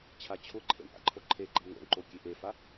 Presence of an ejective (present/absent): absent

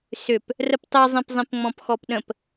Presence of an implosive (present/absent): present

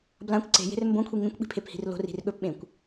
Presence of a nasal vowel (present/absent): present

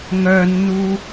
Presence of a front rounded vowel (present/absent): present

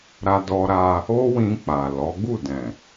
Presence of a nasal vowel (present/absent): present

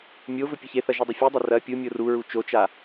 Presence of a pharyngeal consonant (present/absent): absent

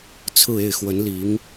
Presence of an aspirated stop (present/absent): present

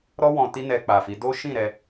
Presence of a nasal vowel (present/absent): present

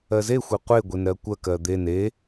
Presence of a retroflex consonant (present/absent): absent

